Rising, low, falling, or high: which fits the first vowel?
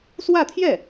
falling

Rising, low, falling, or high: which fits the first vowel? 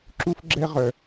high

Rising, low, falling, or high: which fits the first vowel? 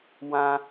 high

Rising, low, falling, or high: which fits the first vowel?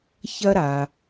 high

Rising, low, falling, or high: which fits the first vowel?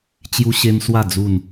high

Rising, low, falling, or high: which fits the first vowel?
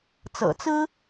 low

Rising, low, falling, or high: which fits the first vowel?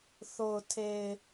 low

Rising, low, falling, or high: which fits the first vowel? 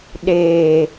low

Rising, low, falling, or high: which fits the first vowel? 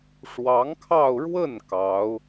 rising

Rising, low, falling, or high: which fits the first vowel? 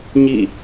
falling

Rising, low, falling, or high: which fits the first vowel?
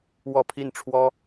falling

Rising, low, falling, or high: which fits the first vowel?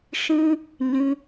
high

